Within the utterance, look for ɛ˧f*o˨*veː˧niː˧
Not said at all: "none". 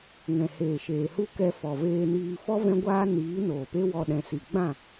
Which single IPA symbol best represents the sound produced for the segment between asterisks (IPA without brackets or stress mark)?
ɔ˨